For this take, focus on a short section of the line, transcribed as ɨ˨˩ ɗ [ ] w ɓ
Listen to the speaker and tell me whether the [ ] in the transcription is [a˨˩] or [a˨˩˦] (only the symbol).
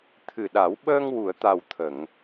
a˨˩˦